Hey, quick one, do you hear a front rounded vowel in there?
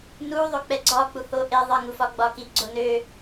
yes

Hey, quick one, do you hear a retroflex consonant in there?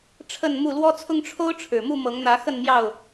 yes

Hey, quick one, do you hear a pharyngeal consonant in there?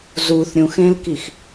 no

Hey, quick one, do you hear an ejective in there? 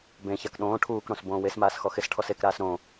no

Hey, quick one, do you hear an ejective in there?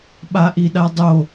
no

